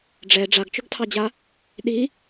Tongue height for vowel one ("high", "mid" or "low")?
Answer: mid